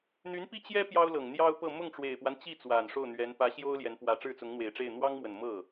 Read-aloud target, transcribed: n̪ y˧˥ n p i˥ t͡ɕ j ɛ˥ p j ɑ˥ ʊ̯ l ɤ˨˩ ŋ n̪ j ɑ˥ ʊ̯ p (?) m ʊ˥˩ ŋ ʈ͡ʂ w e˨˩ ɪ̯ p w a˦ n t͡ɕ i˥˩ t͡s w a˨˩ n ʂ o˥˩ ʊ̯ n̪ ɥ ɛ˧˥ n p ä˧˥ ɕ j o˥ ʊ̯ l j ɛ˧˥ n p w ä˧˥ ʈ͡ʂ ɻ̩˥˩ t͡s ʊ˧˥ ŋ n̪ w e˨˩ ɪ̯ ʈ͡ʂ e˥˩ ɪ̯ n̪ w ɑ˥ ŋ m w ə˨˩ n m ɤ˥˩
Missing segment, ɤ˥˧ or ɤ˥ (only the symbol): ɤ˥˧